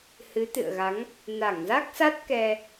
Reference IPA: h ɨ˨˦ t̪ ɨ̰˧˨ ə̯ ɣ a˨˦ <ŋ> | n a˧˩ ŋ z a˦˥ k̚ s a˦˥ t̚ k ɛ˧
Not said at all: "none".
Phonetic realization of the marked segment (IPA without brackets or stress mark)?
ŋ